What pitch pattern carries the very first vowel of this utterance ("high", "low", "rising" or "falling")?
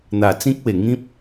low